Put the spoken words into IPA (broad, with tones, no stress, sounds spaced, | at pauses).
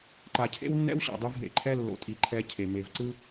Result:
ǃ a˨ cʰ ḛ˦ w nː ɛ̰˦ w ɕ a̰˨ dˤ ɯ˧ v ɦ ḛ˨ ǃʰ ɛ˦ lː o̰˨ tʼ i˨ ǃʰ ɛ˧ cʰ e˨ m e˨ v ǀ ɯ˦